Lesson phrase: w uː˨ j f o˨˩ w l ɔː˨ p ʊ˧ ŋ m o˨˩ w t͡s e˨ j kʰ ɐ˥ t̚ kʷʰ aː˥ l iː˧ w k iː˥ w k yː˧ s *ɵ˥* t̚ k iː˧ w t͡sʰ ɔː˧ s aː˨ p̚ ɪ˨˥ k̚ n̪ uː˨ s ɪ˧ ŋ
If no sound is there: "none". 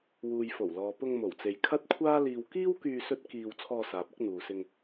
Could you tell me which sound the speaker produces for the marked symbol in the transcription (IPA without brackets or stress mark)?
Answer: ɵ˥